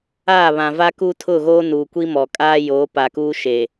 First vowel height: low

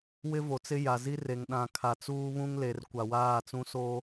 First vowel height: high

